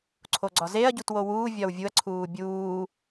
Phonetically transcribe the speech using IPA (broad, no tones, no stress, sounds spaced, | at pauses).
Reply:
ǀʰ o ɡ͡ǀ ɒ z e ɐ̯ ɟ u t w o w uː vʲ ɒ w vʲ u ɐ̯ ǀʰ uː bʲ uː